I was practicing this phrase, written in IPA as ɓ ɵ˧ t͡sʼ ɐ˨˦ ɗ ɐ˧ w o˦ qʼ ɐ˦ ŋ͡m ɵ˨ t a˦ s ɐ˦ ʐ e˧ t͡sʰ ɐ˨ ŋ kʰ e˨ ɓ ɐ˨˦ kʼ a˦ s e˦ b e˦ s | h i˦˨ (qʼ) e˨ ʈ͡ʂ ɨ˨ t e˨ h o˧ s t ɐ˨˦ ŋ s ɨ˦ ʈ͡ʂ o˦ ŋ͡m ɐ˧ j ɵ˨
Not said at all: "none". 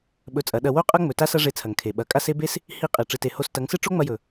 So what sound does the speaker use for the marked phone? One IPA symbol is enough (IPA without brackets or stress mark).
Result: qʼ